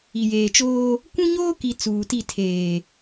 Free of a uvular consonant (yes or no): yes